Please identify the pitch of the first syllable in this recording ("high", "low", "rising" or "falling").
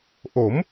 rising